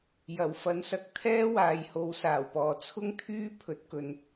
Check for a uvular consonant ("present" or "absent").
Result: absent